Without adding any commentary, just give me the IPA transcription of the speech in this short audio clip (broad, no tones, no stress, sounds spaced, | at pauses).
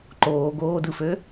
ǃ oː ɡ oː d ɯ f ø